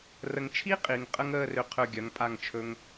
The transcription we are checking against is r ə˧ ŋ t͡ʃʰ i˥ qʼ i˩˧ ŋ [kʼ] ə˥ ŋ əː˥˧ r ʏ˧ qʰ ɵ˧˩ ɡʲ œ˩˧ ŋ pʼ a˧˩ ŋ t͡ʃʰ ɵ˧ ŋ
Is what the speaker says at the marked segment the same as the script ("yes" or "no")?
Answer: no